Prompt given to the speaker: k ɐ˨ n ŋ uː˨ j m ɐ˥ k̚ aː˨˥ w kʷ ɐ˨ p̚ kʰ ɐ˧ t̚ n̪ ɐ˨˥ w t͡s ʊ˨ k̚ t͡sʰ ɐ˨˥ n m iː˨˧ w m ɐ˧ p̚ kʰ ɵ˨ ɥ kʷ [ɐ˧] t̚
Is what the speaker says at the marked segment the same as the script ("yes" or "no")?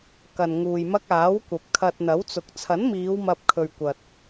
no